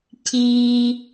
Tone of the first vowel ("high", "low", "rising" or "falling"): low